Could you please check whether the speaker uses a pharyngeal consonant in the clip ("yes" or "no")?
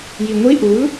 no